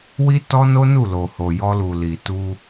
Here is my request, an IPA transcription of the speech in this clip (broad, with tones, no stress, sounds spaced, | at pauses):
w i˦ t ɔ˦ n o˦ n u˦˨ l o˨ h o˨ j ɔ˧ l u˨ l i˨ t u˧